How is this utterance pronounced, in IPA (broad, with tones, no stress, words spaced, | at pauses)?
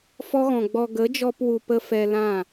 fɔ˦ɣɔ̃˨ ɡ͡bɔ˨ ɡə˨˦d͡ʒɔ˧p wu˧pə˦ fɛ˧lã˦˨